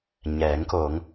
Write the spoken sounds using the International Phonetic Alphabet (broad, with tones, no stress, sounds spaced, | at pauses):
ɲ ɛː˩˧ ŋ k o˩˧ ŋ